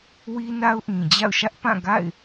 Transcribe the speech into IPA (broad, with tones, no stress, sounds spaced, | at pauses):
w i˦ n a˦ ʊ̯ ʔ ĩ˨ d͡ʑ a̰˦˨ ʊ̯ ʃ ä˦ ʔ p ã˦˨ ɡ a̰˦˨ ɪ̯